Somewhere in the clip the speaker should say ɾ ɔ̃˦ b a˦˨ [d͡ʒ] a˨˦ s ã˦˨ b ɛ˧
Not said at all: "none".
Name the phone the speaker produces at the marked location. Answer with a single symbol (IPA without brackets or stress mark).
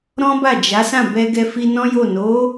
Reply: d͡ʒ